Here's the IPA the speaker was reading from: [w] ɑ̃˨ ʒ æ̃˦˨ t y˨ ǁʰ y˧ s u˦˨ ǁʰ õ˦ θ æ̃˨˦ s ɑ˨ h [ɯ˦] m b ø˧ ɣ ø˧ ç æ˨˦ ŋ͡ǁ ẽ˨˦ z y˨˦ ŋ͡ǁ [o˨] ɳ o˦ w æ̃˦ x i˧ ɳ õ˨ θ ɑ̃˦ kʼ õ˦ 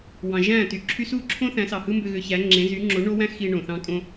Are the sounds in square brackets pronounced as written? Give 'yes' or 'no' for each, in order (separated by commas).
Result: yes, yes, no